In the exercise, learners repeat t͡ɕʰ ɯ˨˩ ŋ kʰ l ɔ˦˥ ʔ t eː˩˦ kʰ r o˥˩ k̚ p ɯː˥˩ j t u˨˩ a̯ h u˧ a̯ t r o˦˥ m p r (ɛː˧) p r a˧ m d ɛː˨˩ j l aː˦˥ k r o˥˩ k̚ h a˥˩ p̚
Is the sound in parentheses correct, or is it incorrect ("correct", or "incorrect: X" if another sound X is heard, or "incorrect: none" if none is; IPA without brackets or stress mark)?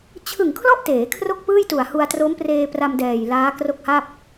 incorrect: eː˧